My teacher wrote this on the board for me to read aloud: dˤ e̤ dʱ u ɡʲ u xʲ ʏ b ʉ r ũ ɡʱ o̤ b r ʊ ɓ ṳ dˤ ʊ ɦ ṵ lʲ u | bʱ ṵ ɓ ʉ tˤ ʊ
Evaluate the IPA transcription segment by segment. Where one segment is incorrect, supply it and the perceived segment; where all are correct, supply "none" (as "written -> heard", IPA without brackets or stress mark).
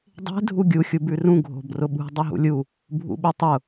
ʏ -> u